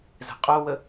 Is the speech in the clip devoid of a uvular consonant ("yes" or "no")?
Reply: no